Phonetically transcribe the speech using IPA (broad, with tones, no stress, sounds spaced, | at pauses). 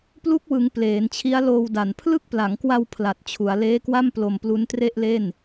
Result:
p l u˦˥ k̚ w ɯ˩˦ ŋ p l eː˩˦ n t͡ɕʰ i˦˥ a̯ l oː˧ w d a˨˩ n pʰ l ɯ˦˥ k̚ p l a˩˦ ŋ k w a˧ w pʰ l a˨˩ t̚ t͡ɕʰ u˩˦ a̯ l eː˦˥ k w a˥˩ m p l o˧ m p l u˦˥ n t r e˥˩ ʔ l e˥˩ n